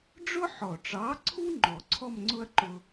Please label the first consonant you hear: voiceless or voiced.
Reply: voiced